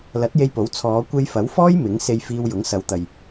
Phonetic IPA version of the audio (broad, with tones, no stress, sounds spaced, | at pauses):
l ɐ˨˥ t̚ j e˧ j p o˨˥ w t͡sʰ ɔː˨˧ kʷ e˧ j f ɐ˨˥ w f ɔː˥ j m ɪ˨˥ ŋ s e˧ j f iː˧ w j ʊ˨˥ ŋ s ɐ˨˧ w t̪ ɐ˨ j